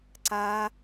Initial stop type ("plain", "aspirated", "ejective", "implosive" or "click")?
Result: click